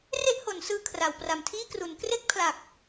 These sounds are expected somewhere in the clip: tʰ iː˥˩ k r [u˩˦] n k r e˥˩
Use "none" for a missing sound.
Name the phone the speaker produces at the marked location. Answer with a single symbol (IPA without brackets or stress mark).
u˩˦